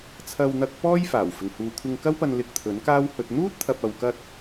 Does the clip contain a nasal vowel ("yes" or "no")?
no